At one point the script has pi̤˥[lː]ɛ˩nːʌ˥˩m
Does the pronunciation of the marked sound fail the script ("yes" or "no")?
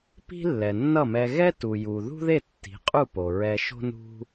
no